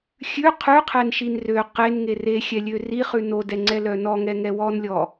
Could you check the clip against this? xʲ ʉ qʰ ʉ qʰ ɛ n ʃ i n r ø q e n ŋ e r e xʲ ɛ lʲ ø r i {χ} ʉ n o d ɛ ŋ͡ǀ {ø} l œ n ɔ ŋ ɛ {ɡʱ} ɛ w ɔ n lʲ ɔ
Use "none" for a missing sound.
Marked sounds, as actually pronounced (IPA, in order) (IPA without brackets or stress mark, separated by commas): χ, ɛ, ŋ